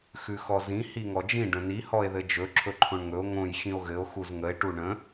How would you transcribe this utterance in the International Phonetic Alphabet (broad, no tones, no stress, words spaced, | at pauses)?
xʉxɔzĩ hiŋɔd͡ʒĩ ɖə̃ni hɔe̯ðɘd͡ʒɵ ǁʰɵǃʰõɳŋɵo̯ ŋõj xĩo̯ɣɘo̯ xuzŋəe̯ ʈuɳə̃